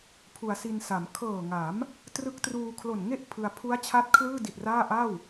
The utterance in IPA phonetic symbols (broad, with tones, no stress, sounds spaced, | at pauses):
pʰ u˩˦ a̯ s i˧ n s a˩˦ m kʰ ɤː˨˩ ŋ a˩˦ m | t r ɯ˦˥ k̚ t r uː˧ kʰ l o˨˩ n ŋ e˥˩ ʔ pʰ ɯ˧ a̯ pʰ u˦˥ a̯ t͡ɕʰ a˦˥ t̚ kʰ l ɯː˥˩ d i˨˩ t̚ r aː˥˩ ʔ a˥˩ w